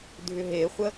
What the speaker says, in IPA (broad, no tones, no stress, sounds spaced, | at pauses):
dʱ ʏ ɦ e χʷ ə